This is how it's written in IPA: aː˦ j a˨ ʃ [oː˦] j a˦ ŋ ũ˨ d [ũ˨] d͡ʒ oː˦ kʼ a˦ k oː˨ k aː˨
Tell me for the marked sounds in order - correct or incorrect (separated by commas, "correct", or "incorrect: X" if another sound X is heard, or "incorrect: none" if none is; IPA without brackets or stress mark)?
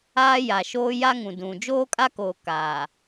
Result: correct, correct